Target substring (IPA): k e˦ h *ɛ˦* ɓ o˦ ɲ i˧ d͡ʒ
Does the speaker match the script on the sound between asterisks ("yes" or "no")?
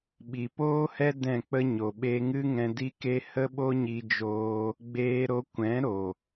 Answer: no